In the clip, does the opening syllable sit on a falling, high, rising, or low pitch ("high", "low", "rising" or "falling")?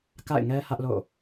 falling